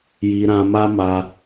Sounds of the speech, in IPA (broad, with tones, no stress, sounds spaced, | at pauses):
j i˧ ɾ ã˧ m a˦ m a˧